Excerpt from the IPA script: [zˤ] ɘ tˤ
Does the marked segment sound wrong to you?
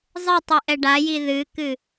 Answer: no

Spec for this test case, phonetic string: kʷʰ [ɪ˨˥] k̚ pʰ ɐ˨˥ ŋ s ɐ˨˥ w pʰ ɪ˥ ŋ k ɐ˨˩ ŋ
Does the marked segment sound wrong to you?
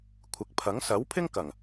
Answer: no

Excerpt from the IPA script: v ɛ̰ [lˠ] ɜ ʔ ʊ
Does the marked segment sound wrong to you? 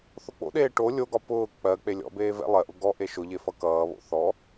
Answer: no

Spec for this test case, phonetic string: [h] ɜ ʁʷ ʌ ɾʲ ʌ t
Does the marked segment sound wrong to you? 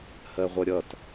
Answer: no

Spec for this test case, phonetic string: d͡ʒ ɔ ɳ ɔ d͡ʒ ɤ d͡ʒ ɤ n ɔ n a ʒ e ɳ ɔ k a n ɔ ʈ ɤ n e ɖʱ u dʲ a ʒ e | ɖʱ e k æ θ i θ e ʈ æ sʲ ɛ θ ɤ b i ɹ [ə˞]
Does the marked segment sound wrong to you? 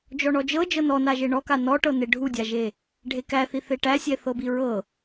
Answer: yes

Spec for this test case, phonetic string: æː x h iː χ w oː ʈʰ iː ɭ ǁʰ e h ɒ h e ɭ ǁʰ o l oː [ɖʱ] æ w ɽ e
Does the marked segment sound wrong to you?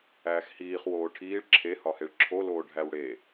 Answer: no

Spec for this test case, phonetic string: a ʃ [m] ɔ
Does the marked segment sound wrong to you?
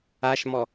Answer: no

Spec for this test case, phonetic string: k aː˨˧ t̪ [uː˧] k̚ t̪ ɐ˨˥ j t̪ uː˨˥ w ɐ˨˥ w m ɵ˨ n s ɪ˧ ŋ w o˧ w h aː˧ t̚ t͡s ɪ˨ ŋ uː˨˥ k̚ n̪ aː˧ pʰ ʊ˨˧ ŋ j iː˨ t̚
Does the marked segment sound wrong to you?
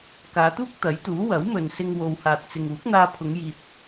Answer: yes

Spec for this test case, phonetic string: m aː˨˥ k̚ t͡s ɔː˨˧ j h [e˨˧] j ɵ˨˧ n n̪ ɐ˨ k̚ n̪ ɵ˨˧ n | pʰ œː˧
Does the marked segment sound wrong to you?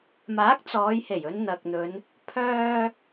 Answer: yes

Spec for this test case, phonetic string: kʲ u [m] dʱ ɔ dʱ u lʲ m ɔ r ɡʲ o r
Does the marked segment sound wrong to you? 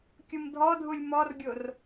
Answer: no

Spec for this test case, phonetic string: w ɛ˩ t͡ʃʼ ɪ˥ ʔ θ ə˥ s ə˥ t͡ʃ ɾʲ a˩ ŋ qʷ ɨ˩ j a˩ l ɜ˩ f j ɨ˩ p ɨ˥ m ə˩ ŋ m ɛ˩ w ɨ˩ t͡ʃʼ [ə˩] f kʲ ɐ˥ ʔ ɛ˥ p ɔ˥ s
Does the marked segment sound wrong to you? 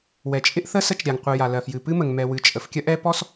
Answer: no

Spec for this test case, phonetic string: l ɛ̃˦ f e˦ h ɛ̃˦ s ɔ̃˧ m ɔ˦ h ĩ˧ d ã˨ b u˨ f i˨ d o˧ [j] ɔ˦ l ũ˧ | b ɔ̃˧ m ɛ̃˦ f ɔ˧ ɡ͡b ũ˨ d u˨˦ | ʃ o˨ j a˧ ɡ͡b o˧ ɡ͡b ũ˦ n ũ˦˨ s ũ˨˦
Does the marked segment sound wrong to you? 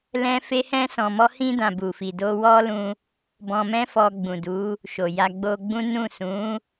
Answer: yes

